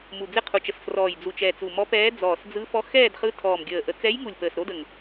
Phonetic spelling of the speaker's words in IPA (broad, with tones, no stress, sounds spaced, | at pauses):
m u˨˩ d͡z ɪ˥˧ qʰ u˨˩ t͡ʃ ə˨˩ s f r ɔː˨˩ j d͡z u˨˩ t͡ʃ ɛ˨˩ t͡s u˨˩ m ɔ˧˥ p ɛː˧˥ d͡z ɔː˨˩ s d͡z ɯ˧˥ f ɔ˧˥ x ɛː˥˧ d χ ɯ˧˥ tʰ ɔː˨˩ m ɡʲ əː˨˩ ʔ ə˨˩ t͡s ɛ˧˥ j ŋ u˨˩ lʲ p əː˨˩ s ɾ o˧˥ d ə˨˩ ŋ